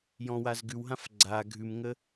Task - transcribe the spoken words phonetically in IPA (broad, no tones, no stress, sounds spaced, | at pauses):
j ɔ̃ w a z ɡ ʉ w ɦ ã f ɡ͡ǀ a ɡʱ ʉ m ŋ ə